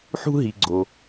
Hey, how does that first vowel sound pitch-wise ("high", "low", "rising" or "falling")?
high